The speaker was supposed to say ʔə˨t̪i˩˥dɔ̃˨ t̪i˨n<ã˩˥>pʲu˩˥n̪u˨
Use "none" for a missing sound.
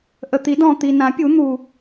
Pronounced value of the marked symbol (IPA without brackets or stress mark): ã˩˥